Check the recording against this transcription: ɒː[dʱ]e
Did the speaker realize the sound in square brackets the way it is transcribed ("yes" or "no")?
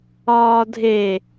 yes